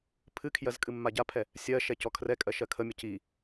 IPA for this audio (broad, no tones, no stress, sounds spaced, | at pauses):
pʰ ɨ kʰ j ɜ z kʼ ɨ mː a ɟ a pʰ ɛ | sʲ ɜ ʃ ɛ c ɔ kʰ r ɛ kʼ ɜ ʃ ɜ kʰ ə mʲ ə c i